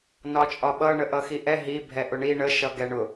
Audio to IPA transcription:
n ɒ t͡ʃʼ ɒ ɓ ʌ ɳ ə ʔ ʌ x i ʔ ɛ ɦ i bʱ ɛ ʔ ʊ ɳ i ɳ ə ʃ ʌ ɡ ɛ ɳ ʊ

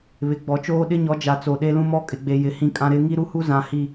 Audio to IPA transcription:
β ɪ˨ ɡ͡b ɔ˨ t͡ʃ oː˦ ɗ ɪ˦ ɲ ɔ˨˦ d͡ʒ a˨ t͡s o˨ ɗ e˦ l ũ˦ m ɔ˦ kʼ ɪ˨ ɡ͡b e˨ j ɪ˨ h ĩ˦ kʼ ã˦ ɾ ɪ˦ ŋ i˦ ɾ u˦ h u˦ z ã˨ h i˦˨

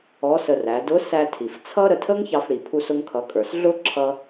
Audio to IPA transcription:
ɔ˧˥ s ə˧ r æ˩˧ d ʊ˧˥ s æ˧ tʰ i˩ f t͡sʰ ʌ˥ ɾ ə˧ tʰ ə˥ ŋ ç ɑ˧ f ɽ i˩ pʰ u˧ s ʊ˧ ŋ kʰ ʌ˩˧ kʼ ə˞˩ s ɮ ʊ˥ ǁʰ ʌ˧

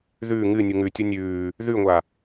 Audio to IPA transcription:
ð ʉː ŋ ɨ nʲ u ŋ ʉ tʲ o nʲ ʉː | ð ʉ ŋʷ a

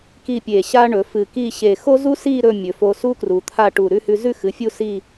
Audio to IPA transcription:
k i˥˧ pʲ e˧˩ ɕ a˥ ɳ ɵ˩˧ f ɨ˧˩ k i˥˧ ɕ e˧˩ x o˥ z u˥ s i˥˧ ɾ ɵ˥˧ mʲ ɵ˩˧ f o˧ s u˥ k r u˩˧ t̪ʰ a˥˧ ʈ u˧˩ ɾ ʉ˥˧ h ʉ˧ z ʉ˥˧ x ɨ˩˧ fʲ u˥˧ s i˥˧

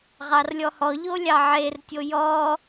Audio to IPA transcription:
ʁ ɑ r lʲ ɔ h ɔ ʎ o lʲ ɑ ʕ e r tʲ o j ɔ

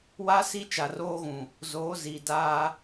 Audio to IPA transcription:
w a˦ s i˦ t͡ʃ a˨ r oː˦ ɣ ũ˨ | z oː˨˦ z iː˨ d aː˦

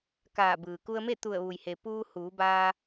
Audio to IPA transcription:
k aː˧˩ b ɯː˩ k u˧ ə̯ m e˥˨ t̪ u˧˩ ə̯ ʋ u˩ j h e˩ p uː˧ h uː˩˧ b aː˧

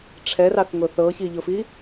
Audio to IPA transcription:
ʈ͡ʂʰ ɛ r ɑ θ ŋ ʊ θ ɤ ç i ʎ ʊ f i

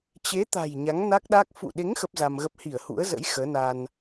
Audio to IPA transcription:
t͡ɕ e˨˦ t̪ a̤˨˩ j ɲ a˨˦ ŋ n a˦˥ k̚ ɗ a˦˥ k̚ f ṵ˧˨ ɗ e˨˦ ŋ x ə˦˥ p̚ z a˧ m ɣ ə˦˥ p̚ h i˧˩ ə̯ h ṵ˧˥ ə̯ z ə̰˧˥ j x əː˨˦ n a˧ n

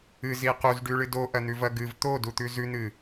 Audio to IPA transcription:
ɨ z i q u z ɖ ʉ ɭ ɨ d o ʔ ɐ n̪ ʉ v ɐ ɡ ɨ v t̪ o d u t̪ ʉ z ʉ n̪ ɨ

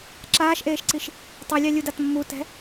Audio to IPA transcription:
ǁ aː ʃ ʔ eː ʃ ǀ i ʃ | tˤ u lʲ ɑ lʲ u d a t mː u t ɛ̤

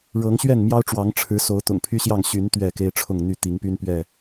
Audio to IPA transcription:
ɻ ɤ˨˦ ŋ ɕ ɥ ɛ˥˨ n m j ɑ˦ ʊ̯ ʈ͡ʂ w ɑ˨˦ ŋ ʈ͡ʂʰ ɻ̩˨˦ s o˨˦ ʊ̯ t̪ ʊ̰˨˩ ŋ pʰ y˦ ɕ j ɑ˥˨ ŋ ɕ y˨˦ n t̪ ɥ ɛ˥˨ k e˦ ɪ̯ ʈ͡ʂʰ ʊ˥˨ ŋ n̪ y˥˨ t̪ i˨˦ ŋ p y˦ n p ɥ ɛ˥˨

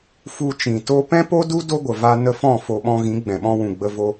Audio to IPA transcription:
f u˨ t͡ʃ ĩ˨ t o˧ p ɛ̃˦ p o˦ d u˦ d o˦ ɡʷ ə˨ v a˧ n ə˧ f ɔ̃˦˨ f o˧ ɓ ɔ̃˧ ɣ ĩ˨˦ ɡ͡b ɛ̃˨ ɓ ɔ̃˧ w ũ˨ ɡ͡b ə˧ v o˧

